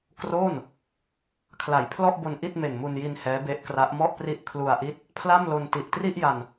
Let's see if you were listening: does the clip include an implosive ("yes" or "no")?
no